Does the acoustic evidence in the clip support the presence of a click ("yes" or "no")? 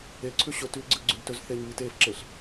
yes